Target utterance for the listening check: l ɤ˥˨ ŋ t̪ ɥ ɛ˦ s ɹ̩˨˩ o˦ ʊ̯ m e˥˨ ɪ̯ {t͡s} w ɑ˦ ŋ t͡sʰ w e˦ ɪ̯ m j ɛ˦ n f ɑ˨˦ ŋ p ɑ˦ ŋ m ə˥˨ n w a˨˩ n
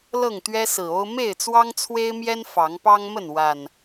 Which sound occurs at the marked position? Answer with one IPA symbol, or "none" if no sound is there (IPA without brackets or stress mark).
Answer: t͡s